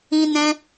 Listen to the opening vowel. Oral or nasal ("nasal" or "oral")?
nasal